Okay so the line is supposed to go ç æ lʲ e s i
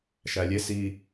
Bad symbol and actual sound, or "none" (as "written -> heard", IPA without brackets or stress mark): ç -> ʃ